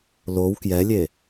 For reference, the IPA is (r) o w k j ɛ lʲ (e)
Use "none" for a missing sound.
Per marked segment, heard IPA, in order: l, e

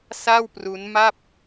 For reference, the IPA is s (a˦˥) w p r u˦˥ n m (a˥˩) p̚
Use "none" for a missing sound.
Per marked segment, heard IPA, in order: a˥˩, a˥˩

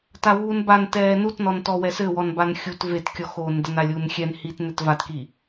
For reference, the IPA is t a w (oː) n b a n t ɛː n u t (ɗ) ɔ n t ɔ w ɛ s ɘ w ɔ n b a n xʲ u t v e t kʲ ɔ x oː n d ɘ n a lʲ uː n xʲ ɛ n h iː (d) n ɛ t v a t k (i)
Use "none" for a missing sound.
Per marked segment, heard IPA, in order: uː, n, t, i

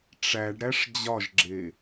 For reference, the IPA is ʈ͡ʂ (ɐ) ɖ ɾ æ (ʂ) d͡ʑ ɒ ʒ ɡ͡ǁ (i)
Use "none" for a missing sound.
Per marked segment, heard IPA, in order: æ, ʂ, e

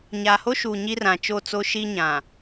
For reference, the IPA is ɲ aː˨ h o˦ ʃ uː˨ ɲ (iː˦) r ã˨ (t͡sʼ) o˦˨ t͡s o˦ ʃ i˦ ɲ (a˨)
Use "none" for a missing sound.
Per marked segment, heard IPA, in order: i˦, t͡ʃ, ã˨

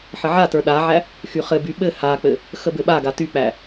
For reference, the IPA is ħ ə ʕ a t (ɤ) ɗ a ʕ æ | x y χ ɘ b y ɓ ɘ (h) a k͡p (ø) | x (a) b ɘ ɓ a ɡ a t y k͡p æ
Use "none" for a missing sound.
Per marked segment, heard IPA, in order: ə˞, h, ɘ, ə

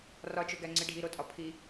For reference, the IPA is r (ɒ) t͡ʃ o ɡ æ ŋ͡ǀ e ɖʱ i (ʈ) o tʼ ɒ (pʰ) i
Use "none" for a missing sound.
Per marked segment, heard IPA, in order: ɒ, ɾ, pʰ

